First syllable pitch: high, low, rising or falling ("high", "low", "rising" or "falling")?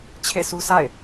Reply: falling